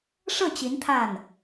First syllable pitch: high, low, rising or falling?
falling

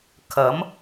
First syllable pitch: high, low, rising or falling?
rising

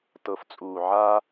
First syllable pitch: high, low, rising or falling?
low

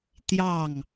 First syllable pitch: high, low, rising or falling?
falling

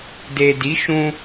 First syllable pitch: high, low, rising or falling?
low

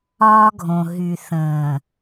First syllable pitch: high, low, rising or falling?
high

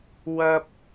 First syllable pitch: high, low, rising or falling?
high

